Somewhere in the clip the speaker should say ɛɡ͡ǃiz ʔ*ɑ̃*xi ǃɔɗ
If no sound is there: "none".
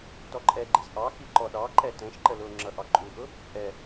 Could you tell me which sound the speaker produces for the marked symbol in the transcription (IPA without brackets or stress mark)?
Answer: ɑ